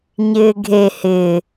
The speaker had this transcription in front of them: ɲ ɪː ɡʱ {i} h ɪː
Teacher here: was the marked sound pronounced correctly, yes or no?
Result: no